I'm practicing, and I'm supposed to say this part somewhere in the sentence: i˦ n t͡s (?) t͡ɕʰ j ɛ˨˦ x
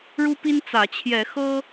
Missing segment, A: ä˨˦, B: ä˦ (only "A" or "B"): A